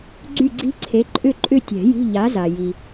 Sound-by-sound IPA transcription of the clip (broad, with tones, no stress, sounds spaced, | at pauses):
ɡ͡ǀ y˦˨ ɡ͡ǀ i̤˦˥ ǀʰ e˨˥ ǃʼ ʏ˦˨ ǃʼ ʏ˦˨ tʲ ɛ̤˨˩˦ j i̤˧˥˧ ʎ a˨˥ z a˨ j i˨